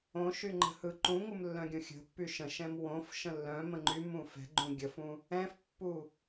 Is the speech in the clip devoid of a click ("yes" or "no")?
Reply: no